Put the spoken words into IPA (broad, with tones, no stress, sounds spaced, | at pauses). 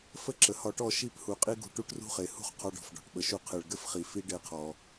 f ə˦ ǁ ə˨ h ɒ˧ ʈ ɔ˦˨ ʃ i˦˨ p h u˨ qʼ i˦ ɡ ṳ˧ ʈ u˦ ʈ r ṳ˦ χ e˨ h ṳ˦ χ qʰ ɒ˧ ɖ ɔ̤˨ f ɖ ɔ̤˨ ʈ ɓ ə˨ ʃ u˧ qʰ e˨ ɭ ɡ ɘ˦ f χ i˨ f i˦ ɖ e˦ qʰ ɔ˧